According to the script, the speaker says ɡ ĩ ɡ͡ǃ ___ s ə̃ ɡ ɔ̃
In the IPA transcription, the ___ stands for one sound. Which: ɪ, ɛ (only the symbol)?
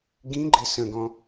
ɪ